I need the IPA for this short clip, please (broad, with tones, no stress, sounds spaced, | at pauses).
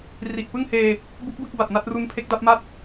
r i˨˩ ʔ p ɯ˥˩ ŋ h eː˧ | b u˦˥ k̚ b ɯ˥˩ k̚ b a˨˩ t̚ n a˥˩ t̚ r u˦˥ n pʰ e˦˥ k̚ d a˦˥ p̚ m a˥˩ t̚